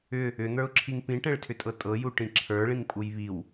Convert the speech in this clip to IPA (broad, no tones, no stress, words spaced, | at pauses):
ʏ | ʏn̪ə˞ʊ̯ǁʰiŋ pĩʈɛ̃ɭtʰʏtʼɤ tʼɤjuʈĩ ǁʰə˞ɭĩŋpʼuj βiw